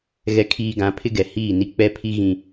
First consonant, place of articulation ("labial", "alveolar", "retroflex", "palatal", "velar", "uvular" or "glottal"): velar